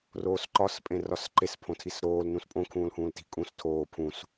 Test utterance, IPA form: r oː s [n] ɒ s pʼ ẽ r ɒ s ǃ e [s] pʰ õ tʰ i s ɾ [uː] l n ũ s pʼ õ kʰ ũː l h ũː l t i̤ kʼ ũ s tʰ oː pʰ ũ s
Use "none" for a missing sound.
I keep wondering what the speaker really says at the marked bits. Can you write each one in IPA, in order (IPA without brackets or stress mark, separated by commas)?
ǃ, s, oː